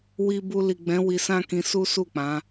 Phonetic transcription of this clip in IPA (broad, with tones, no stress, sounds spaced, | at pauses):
w i˨ b u˨ l i˨ ɡ͡b ɛ̃˨˦ w i˧ s ã˦ k ĩ˧ s u˦ s u˦˨ k͡p ã˨˦